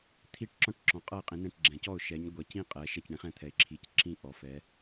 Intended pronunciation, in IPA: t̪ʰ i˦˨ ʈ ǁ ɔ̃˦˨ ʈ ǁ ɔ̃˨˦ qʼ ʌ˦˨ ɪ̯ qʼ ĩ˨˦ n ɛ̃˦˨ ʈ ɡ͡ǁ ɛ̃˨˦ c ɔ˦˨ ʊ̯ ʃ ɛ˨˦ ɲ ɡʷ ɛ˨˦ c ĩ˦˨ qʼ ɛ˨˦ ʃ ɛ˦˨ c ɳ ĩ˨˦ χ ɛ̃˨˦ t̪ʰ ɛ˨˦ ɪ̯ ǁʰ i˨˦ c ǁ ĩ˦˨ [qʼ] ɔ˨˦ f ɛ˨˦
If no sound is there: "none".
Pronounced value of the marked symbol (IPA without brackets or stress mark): ʔ